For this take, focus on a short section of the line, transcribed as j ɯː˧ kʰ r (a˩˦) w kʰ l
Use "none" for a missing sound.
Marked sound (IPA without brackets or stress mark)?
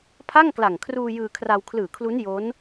a˧